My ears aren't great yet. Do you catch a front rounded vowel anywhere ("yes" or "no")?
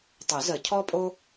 yes